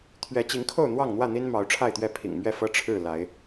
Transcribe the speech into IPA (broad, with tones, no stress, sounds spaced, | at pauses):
t̪ʰ ɥ ɛ˨˦ t͡ɕ i˨˦ ŋ kʰ o˥˨ ʊ̯ n̪ w ɑ˥˨ ŋ n̪ w ä˥˨ n̪ i˦ n m ɑ˨˦ ʊ̯ ʈ͡ʂʰ a˥˨ ɪ̯ t̪ ɥ ɛ˥˨ pʰ ḭ˨˩ ŋ m ɥ ɛ˥˨ f ɤ˦ ʈ͡ʂʰ ɻ̩˥˨ l a˨˦ ɪ̯